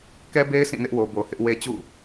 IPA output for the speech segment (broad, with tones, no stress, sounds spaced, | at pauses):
k ɛ˦ b e˦ ɪ̯ s ĩ˦˨ n ɪ˦ ʔ w o˨ b o˨ h ɪ˦ ʔ w e˦ t͡ɕ ṵ˦˨